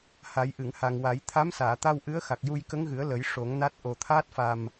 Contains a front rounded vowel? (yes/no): no